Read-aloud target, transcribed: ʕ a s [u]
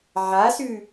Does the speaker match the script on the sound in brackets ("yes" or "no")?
no